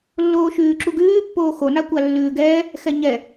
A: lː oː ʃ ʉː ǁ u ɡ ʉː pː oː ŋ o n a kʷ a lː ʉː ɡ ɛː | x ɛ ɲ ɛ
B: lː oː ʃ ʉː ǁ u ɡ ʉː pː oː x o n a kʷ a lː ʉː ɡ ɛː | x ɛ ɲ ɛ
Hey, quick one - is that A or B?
B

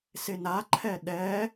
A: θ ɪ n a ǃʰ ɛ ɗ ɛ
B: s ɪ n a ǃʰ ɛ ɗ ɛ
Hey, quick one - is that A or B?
B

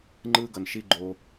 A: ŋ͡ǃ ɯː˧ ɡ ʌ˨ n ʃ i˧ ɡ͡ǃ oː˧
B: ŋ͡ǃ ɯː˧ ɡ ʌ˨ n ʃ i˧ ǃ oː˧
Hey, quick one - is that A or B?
A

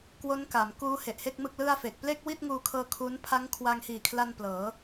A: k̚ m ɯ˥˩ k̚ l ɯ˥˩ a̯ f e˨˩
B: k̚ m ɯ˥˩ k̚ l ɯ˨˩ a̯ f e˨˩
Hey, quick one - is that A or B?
A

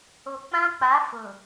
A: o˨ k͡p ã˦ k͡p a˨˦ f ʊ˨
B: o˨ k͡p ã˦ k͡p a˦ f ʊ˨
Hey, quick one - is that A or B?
A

